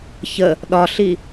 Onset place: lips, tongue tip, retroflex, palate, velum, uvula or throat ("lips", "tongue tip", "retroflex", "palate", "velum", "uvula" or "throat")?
palate